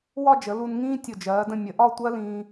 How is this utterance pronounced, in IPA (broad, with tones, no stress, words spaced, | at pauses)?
wɒ˥˧d͡ʒə˩˧ lu˧nŋĩː˥ tʲʊ˧˩d͡ʒɜː˩˧də̃˧ mʲə˩˧ʔɒ˥˧tʷɜ˥lĩː˧